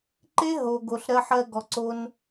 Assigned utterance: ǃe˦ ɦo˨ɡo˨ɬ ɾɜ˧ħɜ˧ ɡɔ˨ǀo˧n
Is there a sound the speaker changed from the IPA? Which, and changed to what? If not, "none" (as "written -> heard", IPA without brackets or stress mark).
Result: none